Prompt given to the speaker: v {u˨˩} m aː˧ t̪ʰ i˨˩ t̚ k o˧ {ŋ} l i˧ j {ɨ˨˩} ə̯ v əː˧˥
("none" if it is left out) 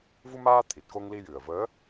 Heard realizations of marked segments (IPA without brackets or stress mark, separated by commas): u˧, ŋ, ɨ˨˩